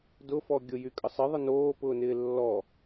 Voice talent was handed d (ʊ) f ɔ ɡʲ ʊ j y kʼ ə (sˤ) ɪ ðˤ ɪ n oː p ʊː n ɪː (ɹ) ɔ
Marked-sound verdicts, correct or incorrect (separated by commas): correct, correct, incorrect